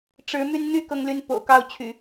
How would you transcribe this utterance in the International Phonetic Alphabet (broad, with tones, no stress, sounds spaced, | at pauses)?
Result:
ʈ͡ʂ ɻ̩˨˦ m y˧ n n̪ y˦ k ɤ˦ ŋ l y˦ n p o̰˨˩ ʊ̯ k ɑ˥˨ ʊ̯ t͡ɕʰ y̰˨˩